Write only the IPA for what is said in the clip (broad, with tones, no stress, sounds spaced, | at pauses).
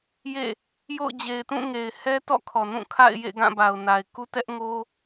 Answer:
j ḛ˦˨ | j o̰˦˨ ʊ̯ d͡ʑ e˨ ɪ̯ t ũ˦˨ ŋ e˨ ɪ̯ h ɛ˦ t ɔ̰˦˨ kʰ ɔ˨ n ũ˦˨ kʰ a̰˦˨ ɪ̯ j ḛ˦˨ ɡ ã˦˨ b a˨ ʊ̯ n a˨ ɪ̯ k u˦ t ɛ˦ ʔ ŋ o˦